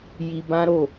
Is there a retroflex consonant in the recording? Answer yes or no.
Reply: no